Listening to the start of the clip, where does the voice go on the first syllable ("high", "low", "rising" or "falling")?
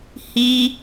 high